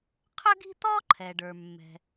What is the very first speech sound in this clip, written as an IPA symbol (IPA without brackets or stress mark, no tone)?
qʰ